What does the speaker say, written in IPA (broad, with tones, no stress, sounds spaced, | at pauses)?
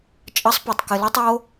t͡ʃʼ ʌ˧˥ sˤ p u˩ tˤ k ɪ˧ l o˥ tˤ o˧˥